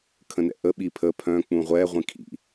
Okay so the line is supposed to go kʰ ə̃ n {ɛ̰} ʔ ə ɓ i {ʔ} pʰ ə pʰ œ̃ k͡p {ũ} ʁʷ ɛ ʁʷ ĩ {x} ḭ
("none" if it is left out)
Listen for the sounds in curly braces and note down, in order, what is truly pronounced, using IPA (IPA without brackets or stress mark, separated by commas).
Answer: ɛ̰, none, ũ, kʰ